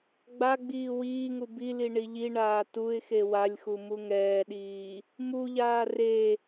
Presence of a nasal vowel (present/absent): absent